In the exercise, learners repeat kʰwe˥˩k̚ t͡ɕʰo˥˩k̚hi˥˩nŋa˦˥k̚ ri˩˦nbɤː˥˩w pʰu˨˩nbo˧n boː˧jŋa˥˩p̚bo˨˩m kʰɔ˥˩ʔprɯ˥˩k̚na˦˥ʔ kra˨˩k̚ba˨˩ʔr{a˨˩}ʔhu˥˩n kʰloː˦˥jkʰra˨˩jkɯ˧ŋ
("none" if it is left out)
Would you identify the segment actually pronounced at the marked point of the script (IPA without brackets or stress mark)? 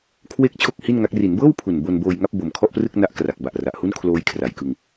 a˨˩